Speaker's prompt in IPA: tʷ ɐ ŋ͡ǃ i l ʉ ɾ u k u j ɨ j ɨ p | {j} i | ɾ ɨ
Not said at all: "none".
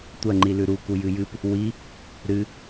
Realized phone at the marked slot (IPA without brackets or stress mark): w